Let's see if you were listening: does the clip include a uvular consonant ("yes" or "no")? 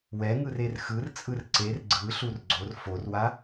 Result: no